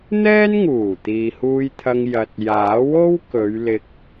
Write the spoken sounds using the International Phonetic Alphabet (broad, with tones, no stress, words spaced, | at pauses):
n̪ɛː˥nŋuː˨˩ t̪iː˨huː˧jt̪ʰɐ˧ŋ jɐ˧t̚ jaː˨˥wo˥w kɵ˨˧ɥlɪ˧k̚